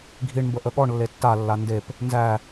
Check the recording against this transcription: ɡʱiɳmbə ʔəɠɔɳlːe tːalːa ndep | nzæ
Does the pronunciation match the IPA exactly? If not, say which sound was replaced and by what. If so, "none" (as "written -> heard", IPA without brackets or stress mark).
none